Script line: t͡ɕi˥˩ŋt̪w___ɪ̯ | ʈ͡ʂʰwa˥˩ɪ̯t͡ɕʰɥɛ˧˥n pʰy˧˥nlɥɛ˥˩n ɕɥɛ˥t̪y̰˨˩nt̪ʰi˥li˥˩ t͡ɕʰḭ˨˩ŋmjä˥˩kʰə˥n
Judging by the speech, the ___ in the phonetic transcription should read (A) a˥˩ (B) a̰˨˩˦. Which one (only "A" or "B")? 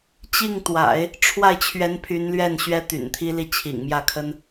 B